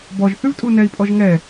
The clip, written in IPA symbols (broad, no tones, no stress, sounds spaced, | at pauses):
b ɔ ʒ θ ʉ v tʼ u n ɛ i̯ pʼ ɔ ʒ ŋ ɛ